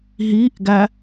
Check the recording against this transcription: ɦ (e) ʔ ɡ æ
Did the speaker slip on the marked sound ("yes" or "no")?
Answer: yes